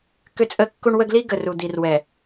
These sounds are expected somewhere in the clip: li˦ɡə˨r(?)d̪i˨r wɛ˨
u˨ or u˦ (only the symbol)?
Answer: u˨